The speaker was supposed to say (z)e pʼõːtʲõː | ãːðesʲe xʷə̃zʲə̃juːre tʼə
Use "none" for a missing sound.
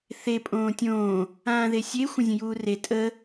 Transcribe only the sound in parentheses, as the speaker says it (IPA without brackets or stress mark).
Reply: θ